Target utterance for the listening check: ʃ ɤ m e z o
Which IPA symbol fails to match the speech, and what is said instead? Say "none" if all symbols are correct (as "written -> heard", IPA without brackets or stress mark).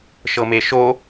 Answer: z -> ʃ